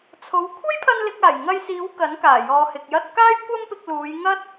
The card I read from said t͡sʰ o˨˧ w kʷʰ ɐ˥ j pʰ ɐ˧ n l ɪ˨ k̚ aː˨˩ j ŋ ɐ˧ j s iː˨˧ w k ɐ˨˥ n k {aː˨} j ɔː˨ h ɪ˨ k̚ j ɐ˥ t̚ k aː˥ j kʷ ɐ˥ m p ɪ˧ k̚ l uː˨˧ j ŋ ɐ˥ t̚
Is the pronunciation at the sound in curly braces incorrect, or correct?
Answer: incorrect